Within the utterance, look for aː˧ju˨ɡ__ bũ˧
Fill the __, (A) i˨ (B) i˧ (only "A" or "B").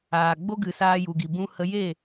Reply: A